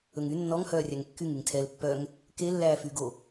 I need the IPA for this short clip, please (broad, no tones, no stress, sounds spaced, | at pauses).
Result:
ɵ ŋ y nː ɔ ŋ h œː rʲ æ ŋ kː y ŋ y ŋ tʰ ɛ l pː œ ŋ | k e lː æː f yː ɡ o